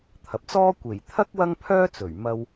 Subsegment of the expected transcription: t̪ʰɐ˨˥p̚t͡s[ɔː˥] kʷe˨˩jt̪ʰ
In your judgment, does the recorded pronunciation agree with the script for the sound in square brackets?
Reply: yes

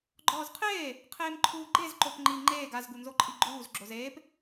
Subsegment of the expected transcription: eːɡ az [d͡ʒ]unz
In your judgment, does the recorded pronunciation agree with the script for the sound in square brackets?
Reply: no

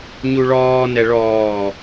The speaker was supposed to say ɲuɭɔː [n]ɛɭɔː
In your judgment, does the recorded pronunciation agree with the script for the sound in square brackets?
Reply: yes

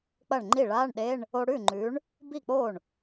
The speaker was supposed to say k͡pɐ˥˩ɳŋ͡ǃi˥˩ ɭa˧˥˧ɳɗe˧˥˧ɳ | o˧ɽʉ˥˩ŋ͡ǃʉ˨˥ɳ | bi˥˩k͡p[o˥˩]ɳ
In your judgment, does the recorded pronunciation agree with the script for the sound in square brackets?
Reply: yes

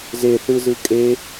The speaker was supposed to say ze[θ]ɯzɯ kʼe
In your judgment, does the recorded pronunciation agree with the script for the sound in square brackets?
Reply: yes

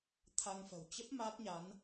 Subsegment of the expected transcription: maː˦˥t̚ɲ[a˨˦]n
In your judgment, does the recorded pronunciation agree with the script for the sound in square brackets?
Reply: yes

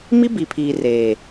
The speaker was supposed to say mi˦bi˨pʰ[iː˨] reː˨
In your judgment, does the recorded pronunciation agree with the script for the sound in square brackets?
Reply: yes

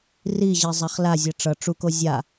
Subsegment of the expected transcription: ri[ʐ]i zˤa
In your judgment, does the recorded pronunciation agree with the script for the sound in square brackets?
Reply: no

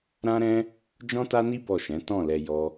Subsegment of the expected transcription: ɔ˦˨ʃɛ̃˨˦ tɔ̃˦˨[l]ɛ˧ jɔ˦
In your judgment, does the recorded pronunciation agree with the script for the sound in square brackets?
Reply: yes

